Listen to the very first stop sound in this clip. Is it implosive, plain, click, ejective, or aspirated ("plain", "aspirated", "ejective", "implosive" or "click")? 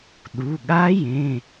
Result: implosive